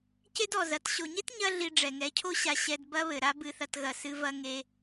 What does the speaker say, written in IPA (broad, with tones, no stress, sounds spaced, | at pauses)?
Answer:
c e˦ d ɔ˨ z ɐ˨˦ t ɕ o˨ ɲ e˦ t ɲ ɐ˦ ɮ i˧ ɖ͡ʐ ɛ˨ ŋ ɛ˨˦ cʰ o˦ ɕ a˧ ɕ ɛ˧ d b ɐ˦ β ɘ˨ ɾ a˦ b ɨ˧ θ ɐ˧ t ɣ ɐ˨ s ɨ˧ v ɐ˧ ŋ e˧